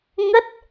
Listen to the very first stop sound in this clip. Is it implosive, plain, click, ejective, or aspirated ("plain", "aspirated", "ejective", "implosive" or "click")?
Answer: plain